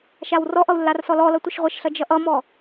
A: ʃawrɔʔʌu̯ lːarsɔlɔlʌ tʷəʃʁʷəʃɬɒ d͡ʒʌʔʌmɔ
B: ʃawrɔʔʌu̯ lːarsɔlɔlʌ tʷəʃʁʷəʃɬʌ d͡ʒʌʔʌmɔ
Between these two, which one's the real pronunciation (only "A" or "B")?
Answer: B